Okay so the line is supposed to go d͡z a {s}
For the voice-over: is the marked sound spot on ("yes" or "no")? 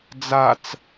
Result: no